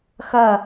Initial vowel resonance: oral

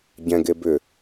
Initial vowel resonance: nasal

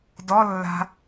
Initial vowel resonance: oral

